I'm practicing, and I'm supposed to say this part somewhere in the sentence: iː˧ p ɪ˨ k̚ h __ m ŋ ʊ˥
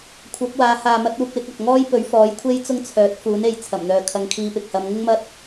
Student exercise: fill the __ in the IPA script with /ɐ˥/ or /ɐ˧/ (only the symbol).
ɐ˧